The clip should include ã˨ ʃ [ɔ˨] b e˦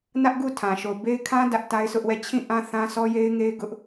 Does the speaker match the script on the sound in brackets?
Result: no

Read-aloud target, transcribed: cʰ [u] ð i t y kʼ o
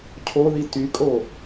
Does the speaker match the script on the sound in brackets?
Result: no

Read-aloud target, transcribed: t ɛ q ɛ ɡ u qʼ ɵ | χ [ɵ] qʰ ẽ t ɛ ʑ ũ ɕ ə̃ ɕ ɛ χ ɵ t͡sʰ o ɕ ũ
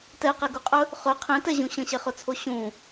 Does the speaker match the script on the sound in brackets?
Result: yes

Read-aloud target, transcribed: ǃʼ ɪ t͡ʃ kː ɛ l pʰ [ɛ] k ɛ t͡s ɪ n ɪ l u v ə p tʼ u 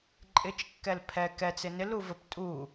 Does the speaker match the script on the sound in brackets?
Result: yes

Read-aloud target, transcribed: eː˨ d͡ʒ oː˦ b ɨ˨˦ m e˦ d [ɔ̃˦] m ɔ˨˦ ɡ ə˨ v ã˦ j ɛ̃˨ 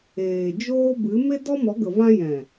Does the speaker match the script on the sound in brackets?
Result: no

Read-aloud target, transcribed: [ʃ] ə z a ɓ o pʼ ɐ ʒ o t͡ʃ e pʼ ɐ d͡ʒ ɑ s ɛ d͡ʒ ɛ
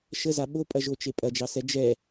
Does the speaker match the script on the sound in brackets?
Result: yes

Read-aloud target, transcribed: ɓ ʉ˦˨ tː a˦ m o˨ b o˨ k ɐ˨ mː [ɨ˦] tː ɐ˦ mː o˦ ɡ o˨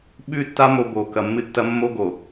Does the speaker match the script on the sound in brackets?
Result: yes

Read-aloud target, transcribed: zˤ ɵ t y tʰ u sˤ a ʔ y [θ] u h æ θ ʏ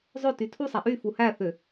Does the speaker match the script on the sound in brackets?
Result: no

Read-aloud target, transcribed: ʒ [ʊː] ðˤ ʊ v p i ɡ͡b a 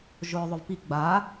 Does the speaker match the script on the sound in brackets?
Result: yes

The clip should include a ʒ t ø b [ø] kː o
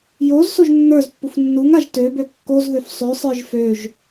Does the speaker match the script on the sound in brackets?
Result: yes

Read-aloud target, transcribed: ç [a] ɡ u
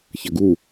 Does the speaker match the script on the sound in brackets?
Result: no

